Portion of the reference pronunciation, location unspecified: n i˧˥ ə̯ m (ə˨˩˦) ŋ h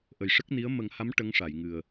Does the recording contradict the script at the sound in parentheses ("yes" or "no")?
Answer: no